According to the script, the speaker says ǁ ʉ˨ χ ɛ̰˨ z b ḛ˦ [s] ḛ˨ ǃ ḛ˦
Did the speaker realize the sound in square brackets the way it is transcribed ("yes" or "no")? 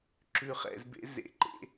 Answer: no